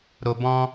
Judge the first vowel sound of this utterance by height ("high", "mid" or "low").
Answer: mid